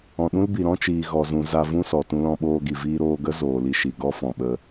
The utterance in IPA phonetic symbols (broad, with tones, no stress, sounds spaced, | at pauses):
ɔ̃˨ ɗ ũ˦ l b i˨ ɾ ɔ̃˦ t͡ʃ iː˨ ɣ ɔ˨ z ũ˨ z a˧ v ũ˦ s ɔ˨ t ũ˧ l ɔ̃˧ ɓ oː˧ ɡ i˨ v iː˧ ɾ oː˧ ɡ ə˦ z oː˨ l i˧ ʃ i˨ ɡ ɔ˦ f ɔ̃˨ ɓ ə˧